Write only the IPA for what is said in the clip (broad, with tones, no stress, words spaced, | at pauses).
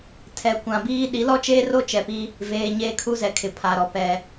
tʰɛ˨ kʷã˨biː˦ ɗi˨˦lɔ˦t͡ʃeː˦ro˦ t͡ʃɛ˨pi˦ | veː˨ɲeː˦kʰu˦zɛ˨ kʰɪ˨pʰa˨ɾɔ˨ pɛ˨